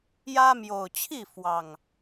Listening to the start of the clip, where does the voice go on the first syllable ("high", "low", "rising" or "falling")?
high